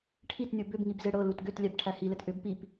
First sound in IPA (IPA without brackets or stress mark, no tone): ʈʰ